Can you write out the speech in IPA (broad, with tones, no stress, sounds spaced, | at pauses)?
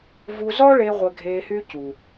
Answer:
v u˧ z ɔ˦ ɭ e˧ ʁʷ ɛ˧ ɡʱ eː˧ h y˦ c u˨